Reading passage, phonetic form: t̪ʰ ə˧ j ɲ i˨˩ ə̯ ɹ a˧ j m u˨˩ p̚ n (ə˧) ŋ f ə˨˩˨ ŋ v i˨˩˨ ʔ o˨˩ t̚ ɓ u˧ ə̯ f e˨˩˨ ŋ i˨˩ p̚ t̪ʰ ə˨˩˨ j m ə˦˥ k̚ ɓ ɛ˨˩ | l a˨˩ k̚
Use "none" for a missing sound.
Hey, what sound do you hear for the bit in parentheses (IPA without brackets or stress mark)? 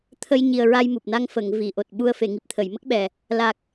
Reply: a˧